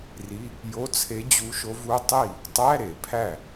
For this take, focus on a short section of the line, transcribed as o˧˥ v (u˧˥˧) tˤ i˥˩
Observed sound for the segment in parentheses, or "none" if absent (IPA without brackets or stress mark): u˧˥˧